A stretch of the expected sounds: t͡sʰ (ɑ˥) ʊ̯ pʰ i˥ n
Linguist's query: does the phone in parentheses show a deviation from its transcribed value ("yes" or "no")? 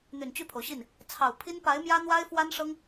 yes